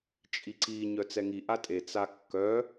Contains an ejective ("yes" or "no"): yes